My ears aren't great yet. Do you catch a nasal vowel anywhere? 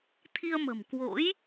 no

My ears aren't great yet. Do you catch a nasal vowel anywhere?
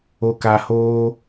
no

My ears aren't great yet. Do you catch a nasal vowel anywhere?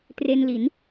no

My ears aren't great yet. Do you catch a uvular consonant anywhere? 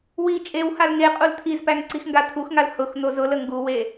yes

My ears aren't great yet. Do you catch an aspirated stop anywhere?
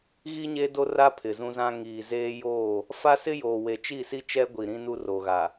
yes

